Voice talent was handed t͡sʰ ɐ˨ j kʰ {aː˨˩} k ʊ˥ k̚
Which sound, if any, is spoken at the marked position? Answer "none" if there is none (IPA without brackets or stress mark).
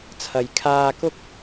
aː˧